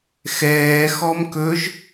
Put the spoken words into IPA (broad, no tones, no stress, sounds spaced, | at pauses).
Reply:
x ɛː x ɔ m k ɵ ʒ